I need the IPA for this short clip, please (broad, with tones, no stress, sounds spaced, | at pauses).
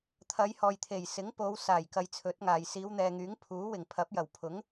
t̪ʰ ɐ˨˧ j h ɔː˨ j t̪ʰ e˨˩ j s ɪ˨˥ ŋ p o˨˧ w s aː˨˩ j k ɐ˧ j t͡sʰ ɵ˨˥ t̚ ŋ aː˨ j s iː˨˧ w n̪ ɛː˨ ŋ yː˨˥ ŋ pʰ uː˨˥ w ɪ˨˩ ŋ pʰ ɐ˨˥ p̚ j ɐ˨˩ w pʰ ʊ˨˥ ŋ